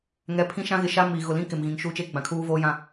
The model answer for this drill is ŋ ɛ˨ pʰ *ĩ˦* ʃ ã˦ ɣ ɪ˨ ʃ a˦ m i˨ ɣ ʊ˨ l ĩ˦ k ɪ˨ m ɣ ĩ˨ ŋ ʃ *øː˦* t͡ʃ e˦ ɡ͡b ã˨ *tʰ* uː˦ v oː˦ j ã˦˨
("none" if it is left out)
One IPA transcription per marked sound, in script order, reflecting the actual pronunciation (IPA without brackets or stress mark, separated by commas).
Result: ĩ˦, uː˦, kʰ